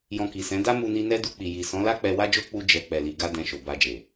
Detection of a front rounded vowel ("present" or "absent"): absent